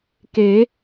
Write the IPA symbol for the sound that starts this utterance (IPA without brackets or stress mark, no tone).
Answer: k